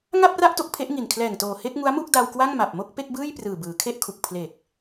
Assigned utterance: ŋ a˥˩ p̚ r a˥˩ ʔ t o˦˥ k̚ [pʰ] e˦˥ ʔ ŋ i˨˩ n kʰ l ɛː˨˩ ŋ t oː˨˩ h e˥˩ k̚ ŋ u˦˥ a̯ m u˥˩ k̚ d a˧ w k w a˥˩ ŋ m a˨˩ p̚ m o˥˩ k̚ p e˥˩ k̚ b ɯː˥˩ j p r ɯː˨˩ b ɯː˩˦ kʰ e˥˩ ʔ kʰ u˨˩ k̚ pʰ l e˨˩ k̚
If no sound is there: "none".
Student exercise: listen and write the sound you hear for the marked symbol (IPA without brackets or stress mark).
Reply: pʰ